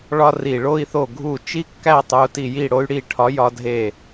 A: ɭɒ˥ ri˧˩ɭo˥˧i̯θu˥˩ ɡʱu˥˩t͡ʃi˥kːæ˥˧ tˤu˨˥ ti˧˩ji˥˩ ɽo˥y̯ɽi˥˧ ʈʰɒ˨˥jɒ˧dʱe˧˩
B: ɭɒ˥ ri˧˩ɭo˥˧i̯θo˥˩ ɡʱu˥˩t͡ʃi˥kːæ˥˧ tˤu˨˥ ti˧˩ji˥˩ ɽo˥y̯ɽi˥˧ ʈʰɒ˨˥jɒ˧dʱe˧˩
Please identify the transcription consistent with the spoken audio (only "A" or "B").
B